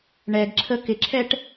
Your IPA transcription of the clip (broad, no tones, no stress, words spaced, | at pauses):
ɳɛɡǁʰə kɪǁʰɛʈ